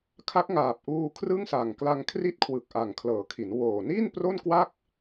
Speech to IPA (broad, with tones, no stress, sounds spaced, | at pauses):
kʰ a˦˥ k̚ ŋ aː˨˩ p̚ ʔ uː˧ kʰ r ɯ˥˩ ŋ s a˨˩ ŋ k l a˧ ŋ kʰ r i˥˩ t̚ kʰ w ɯ˨˩ k̚ ʔ a˨˩ ŋ kʰ l ɤː˩˦ kʰ i˩˦ n w oː˨˩ n i˥˩ n p r o˥˩ n k w a˥˩ k̚